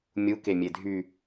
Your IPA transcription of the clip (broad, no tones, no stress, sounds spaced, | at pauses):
mʲ u k e mʲ e dʱ y